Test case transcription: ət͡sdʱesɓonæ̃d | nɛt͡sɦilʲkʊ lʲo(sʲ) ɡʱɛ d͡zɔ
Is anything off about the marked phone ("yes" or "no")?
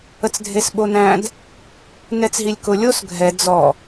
yes